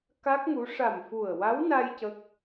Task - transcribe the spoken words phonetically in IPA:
k a˦˥ k̚ ŋ u˧˥ ʂ a˨˩ m f u˨˩ ə̯ w a˧˥ w n a˧ j c ə˦˥ k̚

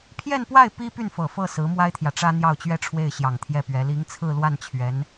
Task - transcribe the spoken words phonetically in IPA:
pʰ j ɛ˥˧ n p w a˥˩ ɪ̯ p i˥ p y˥˩ n f ɤ˨˩ f ɤ˥˩ s ɹ̩˧˥ m w a˥ ɪ̯ t̪ʰ j ä˨ ʈ͡ʂ ä˥ n̪ j ɑ˥˩ ʊ̯ t͡ɕ ɥ ɛ˥ ʈ͡ʂʰ w e˥˩ ɪ̯ ɕ j ɑ˨˩ ŋ t̪ʰ j ɛ˥˩ p ɥ ɛ˧˥ l i˧˥ ŋ t͡sʰ ɹ̩˥˧ l w a˥˩ n t͡ɕʰ ɥ ɛ˧˥ n

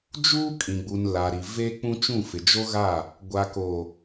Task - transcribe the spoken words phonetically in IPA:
d͡ʒ uː˦ kʼ ĩ˨ ɡ͡b u˨ n l a˨ ɾ i˨ v eː˦ k͡p ũ˦ t͡ʃ ũ˦˨ f ɪ˨ d͡ʒ o˦ ɣ a˦˨ | ɡʷ a˨ k o˨

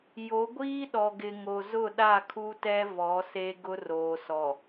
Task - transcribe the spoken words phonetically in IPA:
j o˨˦ ɡʷ iː˦ ɗ ɔ˨ ɡ ɪ˨ ŋ o˨ z ʊ˦˨ ɗ a˦˨ kʰ u˦ t ɛ˦ v ɔ˨˦ s e˦ ɡ ʊ˦ r oː˨ s ɔ˨

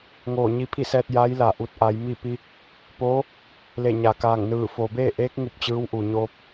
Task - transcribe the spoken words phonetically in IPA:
ŋ oː˧˩ ɲ i˧ pʰ i˥˨ s ɛː˧ t̚ j a˧˥ j l a˧˩ ʔ u˧ t̚ ʔ a˩˧ j m i˥˨ p i˧ | p oː˧˥ | l e˧˩ ɲ a˩ k aː˧˩ ŋ n ɯː˧˩ f oː˩ b eː˥˨ ʔ eː˧˥ k̚ ŋ u˧˩ p̚ t͡ɕ ɯː˧˥ w ʔ u˩ ɲ oː˧ p̚

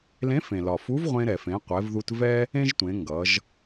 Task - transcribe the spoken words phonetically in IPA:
l ẽ˧˥ f ẽ˩ l ɒ˩ f u˧˥ v ʁʷ ẽ˧ ɾ ɛ˩ f ẽ˩˧ qʷ ɛ˩˧ v ð u˧ t v ɛ˥ | ẽ˥ ʒ tʷ ẽ˩˧ ŋ ɡ ʌ˩˧ ʒ

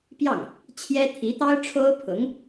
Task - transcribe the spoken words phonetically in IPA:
p j ɑ˥˩ ŋ | t͡ɕʰ j ɛ˥ t̪ʰ i˧˥ t̪ ɑ˥ ʊ̯ ʈ͡ʂʰ o˥ ʊ̯ pʰ ʊ˧˥ ŋ

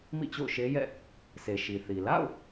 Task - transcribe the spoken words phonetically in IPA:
m ḭ˦˨ t͡ɕ o̰˦˨ ʊ̯ ʃ e˦ j ɛ̰˦˨ | s e˨ ʃ i˨ θ i˨ l a̰˦˨ ʊ̯

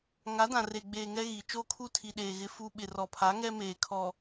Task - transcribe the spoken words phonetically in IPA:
ŋ a˨˦ d ã˨ r e˨ ɡ͡b eː˨ ŋ ɛ˦ ɣ i˨ t͡ʃ oː˦ kʰ u˦ tʰ i˨ ɗ eː˨ ɣ ɪ˦ f u˦ ɓ ɪ˨ r ɔ˨ pʰ a˨˦ ŋ ɛ˦ m eː˨ kʰ ɔ˨

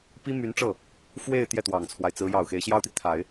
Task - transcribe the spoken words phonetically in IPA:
p i˥ m y˧˥ n ʈ͡ʂ ɤ˥˩ | f w e˥˧ ɪ̯ t̪ j ɛ˥˩ t̪ w ɑ˨˩ ŋ t͡sʰ w a˦ ɪ̯ t͡s ɹ̩˧˥ j ɑ˨˩ ʊ̯ x e˧˥ ɪ̯ ɕ j ɑ˥ ʊ̯ t̪ i˨ t̪ʰ a˨˩˦ ɪ̯

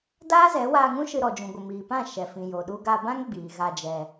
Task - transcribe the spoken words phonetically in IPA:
d aː˦ z ɛ˨˦ w aː˧ ŋ ũ˦ ʃ ɨ˧ ɾ ɔ˨ d͡ʒ ũ˨ ɡʷ ə˨ m iː˨ p ã˦˨ ʃ ɛ˨ f ĩ˨ j o˨ ɗ u˧ ɡ a˧ b ã˦ ŋ ɡ͡b iː˨ ɣ a˧ d͡ʒ ɛ˨

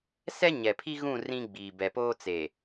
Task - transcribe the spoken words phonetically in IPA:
s ɛ˦ ɲ ɛ˨ pʰ i˦ ɣ ũ˦˨ r ĩ˦ ɡ͡b iː˨ b ɛ˨ p oː˦ t͡s e˨

